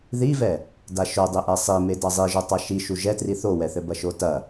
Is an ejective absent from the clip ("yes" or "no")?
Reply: yes